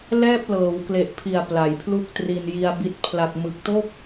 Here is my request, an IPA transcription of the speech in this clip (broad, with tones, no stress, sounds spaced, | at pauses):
l ɛː˥˩ p̚ l ɤː˩˦ w k l e˨˩ ʔ pʰ i˨˩ a̯ p l a˨˩ j pʰ l u˥˩ k̚ t r i˧ n j i˧ a̯ b i˦˥ t̚ pʰ l a˨˩ k̚ m ɯ˨˩ k̚ t o˥˩ k̚